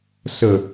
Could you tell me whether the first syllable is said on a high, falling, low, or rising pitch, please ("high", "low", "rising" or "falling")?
low